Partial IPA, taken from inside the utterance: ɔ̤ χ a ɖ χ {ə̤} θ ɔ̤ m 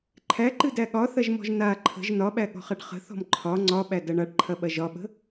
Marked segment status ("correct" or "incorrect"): correct